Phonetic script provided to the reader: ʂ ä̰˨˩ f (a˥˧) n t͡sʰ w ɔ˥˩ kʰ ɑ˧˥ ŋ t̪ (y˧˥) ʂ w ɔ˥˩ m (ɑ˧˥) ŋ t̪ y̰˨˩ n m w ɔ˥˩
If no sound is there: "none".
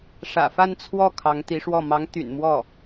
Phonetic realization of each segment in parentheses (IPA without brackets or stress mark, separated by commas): a˥˧, i˧˥, ɑ˧˥